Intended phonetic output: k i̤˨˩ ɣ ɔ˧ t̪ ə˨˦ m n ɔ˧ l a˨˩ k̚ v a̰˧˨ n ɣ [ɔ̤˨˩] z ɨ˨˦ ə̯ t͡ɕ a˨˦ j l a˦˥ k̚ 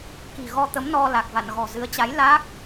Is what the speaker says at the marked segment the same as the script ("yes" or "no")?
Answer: yes